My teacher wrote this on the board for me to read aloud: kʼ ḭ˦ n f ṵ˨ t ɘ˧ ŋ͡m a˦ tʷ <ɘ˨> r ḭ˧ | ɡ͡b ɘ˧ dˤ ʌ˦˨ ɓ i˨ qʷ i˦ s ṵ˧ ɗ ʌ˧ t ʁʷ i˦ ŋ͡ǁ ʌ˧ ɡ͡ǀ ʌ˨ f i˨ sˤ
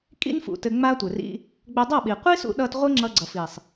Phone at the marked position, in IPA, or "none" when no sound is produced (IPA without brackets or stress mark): ɘ˨